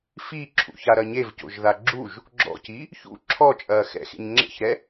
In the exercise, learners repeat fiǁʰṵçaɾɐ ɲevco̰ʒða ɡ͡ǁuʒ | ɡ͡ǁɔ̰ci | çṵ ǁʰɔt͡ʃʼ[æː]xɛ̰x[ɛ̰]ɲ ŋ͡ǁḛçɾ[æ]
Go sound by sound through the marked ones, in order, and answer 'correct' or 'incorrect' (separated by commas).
incorrect, incorrect, incorrect